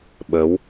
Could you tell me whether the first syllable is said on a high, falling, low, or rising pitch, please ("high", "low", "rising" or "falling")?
rising